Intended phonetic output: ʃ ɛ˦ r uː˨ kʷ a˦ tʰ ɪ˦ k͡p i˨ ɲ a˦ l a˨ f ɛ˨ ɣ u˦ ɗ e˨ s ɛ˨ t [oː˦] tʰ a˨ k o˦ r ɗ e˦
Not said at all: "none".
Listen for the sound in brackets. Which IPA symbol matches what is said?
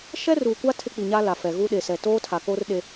oː˦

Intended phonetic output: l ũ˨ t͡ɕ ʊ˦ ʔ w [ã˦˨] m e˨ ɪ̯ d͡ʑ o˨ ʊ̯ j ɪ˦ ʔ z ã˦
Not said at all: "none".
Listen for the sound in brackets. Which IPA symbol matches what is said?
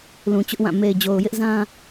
ã˦˨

